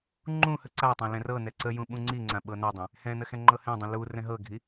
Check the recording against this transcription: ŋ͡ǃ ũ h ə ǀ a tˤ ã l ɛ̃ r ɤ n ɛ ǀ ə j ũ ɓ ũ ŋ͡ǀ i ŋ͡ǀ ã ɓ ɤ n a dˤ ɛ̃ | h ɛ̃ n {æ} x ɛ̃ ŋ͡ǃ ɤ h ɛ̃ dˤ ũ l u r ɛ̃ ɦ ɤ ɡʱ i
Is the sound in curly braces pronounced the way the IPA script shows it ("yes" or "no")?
no